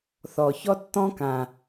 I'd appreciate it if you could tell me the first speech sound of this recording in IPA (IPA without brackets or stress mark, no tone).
θ